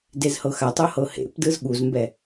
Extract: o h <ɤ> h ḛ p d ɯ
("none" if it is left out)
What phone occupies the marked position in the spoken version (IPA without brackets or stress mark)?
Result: ɤ